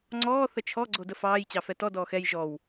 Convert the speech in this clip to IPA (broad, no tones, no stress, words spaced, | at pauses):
ŋ͡ǀɔː θət͡ʃʰɔ ɡ͡ǀodəfɑːj t͡ɕɑfɛtɔ dɔːxɛj ʒɔw